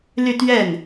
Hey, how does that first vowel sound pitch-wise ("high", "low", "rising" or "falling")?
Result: falling